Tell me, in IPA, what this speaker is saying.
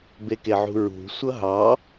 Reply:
b e k e ʕ ṳ ɹ ṳ sʷ ʌ ɦ ɑ

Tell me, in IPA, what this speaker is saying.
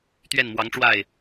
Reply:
t̪ ɥ ɛ˥˩ n m w ɑ˧˥ ŋ ʈ͡ʂ w a˥˩ ɪ̯

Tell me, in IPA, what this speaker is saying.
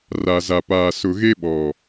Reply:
r a˨ z a˨ p aː˨ s ʊ˨ ɣ e˦ ɓ ɔ˨

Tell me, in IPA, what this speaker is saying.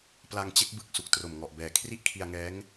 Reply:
p l a˧ ŋ t͡ɕ e˦˥ k̚ b ɯ˨˩ k̚ s u˨˩ k̚ t r o˨˩ m ŋ ɔ˨˩ ʔ b ɛː˨˩ kʰ r i˥˩ ʔ kʰ i˧ a̯ ŋ ɛː˦˥ ŋ

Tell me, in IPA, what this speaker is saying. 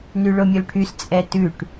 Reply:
n y ɭ o mʲ o l ʈʰ y s t͡sʼ ɛ t ʉ ʈ

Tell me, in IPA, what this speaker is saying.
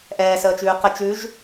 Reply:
ʔ ɛː s əː t͡ʃ ʉː q ə t͡ʃ ʉ ʒ

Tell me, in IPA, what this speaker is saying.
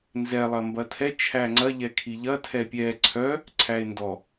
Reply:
n z ɛ lˠ ɐ m b ɐ tʰ ɛ t͡ʃʰ æ ŋ͡ǀ ɐ ʎ ɛ kʰ i ʎ ɐ tʰ ɛ pʲ ɛ ǀʰ œ | ǀʰ æ e̯ n d ɔ

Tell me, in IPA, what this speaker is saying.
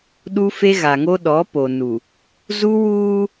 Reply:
ɗ u˦ f e˦ ɣ a˨ ŋ o˦ ɗ ɔ˨˦ p o˨ n u˨ | z u˦ w uː˦

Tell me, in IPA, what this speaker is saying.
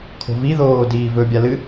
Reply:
kʰ o̤ v i ð oː d iː v ɵ bʲ a l ɨ

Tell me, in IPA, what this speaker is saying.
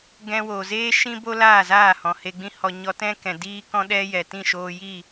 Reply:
ɡ ɛ̃˧ w oː˨ z eː˦ ʃ ĩ˦ b o˦ l aː˦˨ z aː˦˨ h ɔ̃˨ h e˧ ɡ͡b ĩ˦ h ɔ˧ ɲ ɔ˧ t ɛ̃˦ k ɛ̃˨ d iː˦ k ɔ̃˦ ɗ ɛ˦ j ɛ˨ t ĩ˦˨ ʃ oː˧ j iː˦˨

